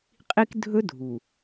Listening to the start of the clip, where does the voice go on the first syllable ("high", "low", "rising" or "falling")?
high